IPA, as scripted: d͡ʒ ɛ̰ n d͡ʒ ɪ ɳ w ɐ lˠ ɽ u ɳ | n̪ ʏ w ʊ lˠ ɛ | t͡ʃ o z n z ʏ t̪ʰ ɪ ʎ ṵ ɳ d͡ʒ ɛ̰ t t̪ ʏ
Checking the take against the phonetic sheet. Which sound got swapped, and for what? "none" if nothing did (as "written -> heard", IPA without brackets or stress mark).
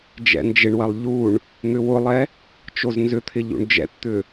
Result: ɽ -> ʎ